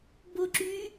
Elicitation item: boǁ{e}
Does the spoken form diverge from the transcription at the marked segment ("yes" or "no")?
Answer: yes